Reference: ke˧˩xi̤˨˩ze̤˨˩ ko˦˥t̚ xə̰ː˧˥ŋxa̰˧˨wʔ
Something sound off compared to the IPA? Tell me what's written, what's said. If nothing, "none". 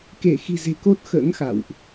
none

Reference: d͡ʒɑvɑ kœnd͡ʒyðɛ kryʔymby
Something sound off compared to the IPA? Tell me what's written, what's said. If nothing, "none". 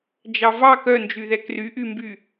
none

